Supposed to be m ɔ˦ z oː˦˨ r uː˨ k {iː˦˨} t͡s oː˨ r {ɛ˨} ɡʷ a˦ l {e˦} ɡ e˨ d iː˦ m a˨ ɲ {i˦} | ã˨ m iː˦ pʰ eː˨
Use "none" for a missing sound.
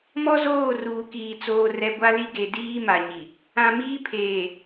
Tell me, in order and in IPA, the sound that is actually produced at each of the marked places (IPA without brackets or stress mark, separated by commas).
iː˨, ɛ˨, i˦, i˨